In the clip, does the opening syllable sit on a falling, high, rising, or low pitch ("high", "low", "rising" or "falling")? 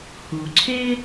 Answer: low